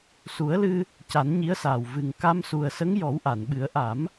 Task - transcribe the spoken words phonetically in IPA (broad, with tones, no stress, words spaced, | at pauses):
su˨˩˦ə̯lɨ˧ | ca˨˩˦nɲi˧˥ə̯saː˨˩w vɨ˨˩ŋ ka˧msu˨˩ə̯sə˧˥ŋ jɔ˨˩˦wʔa˨˩˨nɓɨ˨˩˦ə̯ ʔa˨˩˦m